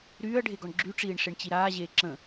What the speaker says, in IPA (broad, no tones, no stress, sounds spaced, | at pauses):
ɾ yː ɐ̯ ɖʱ e ɡ ɔ ɳ ɡ͡ǁ y ʈ͡ʂ iː ɳ ʂ e ɳ t͡ɕ i ɾ aː ʑ eː ǁ ə̃